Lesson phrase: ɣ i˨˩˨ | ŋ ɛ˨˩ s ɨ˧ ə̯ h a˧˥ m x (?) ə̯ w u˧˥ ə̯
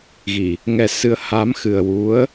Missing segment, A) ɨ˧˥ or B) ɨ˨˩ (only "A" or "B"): B